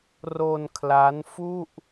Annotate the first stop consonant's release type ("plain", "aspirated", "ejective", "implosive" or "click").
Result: aspirated